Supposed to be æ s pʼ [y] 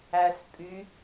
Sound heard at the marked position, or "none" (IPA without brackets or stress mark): y